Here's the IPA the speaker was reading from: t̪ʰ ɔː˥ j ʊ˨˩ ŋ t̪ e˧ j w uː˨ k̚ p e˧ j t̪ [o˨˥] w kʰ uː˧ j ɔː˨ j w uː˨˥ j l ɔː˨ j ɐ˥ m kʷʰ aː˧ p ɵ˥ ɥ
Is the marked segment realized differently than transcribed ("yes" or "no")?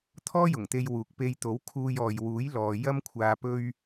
no